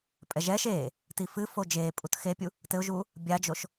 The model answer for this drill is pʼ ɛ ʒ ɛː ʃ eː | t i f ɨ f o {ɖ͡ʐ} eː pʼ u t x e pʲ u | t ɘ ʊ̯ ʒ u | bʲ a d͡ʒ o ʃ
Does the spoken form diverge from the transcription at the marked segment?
yes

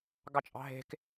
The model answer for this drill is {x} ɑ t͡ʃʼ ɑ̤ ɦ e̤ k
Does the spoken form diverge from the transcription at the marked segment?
yes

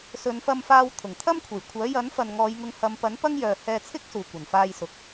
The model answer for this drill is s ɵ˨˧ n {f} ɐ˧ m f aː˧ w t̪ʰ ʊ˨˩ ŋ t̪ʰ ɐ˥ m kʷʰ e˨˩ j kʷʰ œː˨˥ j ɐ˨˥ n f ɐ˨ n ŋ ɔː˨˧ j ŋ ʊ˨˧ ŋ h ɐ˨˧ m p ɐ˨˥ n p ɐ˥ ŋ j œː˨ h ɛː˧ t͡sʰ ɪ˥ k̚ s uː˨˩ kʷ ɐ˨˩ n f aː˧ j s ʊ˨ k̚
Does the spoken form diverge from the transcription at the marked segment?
no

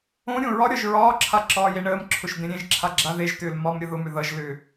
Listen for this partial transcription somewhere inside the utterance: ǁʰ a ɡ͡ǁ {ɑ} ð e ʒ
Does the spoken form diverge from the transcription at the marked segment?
yes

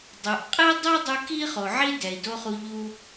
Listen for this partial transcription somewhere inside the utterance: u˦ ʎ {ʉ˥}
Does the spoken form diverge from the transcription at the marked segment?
yes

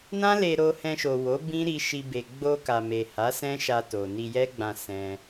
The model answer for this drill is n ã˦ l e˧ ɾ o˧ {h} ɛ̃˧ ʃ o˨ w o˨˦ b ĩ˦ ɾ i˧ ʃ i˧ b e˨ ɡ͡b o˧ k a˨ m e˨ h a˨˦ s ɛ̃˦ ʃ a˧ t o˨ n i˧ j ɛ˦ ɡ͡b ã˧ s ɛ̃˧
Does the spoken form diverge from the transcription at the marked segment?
no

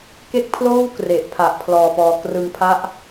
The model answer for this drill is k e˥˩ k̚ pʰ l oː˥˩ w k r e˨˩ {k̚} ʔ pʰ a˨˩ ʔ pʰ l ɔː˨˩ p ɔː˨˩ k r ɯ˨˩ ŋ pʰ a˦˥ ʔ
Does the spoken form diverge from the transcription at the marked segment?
yes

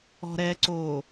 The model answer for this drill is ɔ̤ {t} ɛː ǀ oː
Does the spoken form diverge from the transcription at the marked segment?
yes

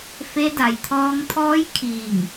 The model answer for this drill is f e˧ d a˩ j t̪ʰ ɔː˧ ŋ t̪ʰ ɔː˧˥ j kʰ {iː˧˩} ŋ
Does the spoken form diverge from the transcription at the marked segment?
no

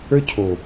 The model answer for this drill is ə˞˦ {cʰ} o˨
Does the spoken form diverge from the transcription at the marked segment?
no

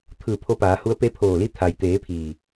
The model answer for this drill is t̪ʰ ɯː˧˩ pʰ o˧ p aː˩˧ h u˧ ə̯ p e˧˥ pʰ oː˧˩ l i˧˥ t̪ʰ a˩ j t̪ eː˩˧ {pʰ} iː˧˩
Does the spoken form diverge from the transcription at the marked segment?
no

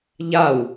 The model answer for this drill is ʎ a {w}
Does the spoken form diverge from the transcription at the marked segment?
no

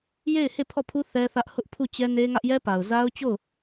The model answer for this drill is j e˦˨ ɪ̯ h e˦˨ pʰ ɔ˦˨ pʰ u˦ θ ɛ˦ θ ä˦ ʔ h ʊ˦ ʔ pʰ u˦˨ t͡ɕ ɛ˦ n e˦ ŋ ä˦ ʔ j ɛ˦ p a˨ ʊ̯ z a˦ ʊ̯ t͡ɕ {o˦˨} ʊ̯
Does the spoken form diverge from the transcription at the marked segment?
no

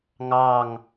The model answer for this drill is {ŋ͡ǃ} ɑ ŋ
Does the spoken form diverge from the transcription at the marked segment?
yes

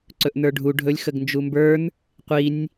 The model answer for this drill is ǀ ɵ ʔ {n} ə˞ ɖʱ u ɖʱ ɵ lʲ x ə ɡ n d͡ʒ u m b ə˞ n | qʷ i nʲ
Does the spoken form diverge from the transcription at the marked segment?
no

